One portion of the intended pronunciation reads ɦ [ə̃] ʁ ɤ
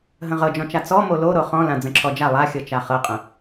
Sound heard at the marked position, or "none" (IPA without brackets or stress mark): ə̃